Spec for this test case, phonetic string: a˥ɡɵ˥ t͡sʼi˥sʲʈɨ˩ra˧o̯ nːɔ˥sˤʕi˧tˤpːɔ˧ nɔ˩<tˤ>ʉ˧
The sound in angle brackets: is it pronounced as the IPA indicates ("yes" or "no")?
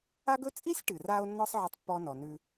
no